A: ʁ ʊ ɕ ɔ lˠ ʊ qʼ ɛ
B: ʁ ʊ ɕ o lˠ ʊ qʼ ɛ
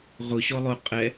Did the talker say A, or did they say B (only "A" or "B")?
A